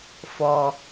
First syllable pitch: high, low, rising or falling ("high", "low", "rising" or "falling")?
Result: high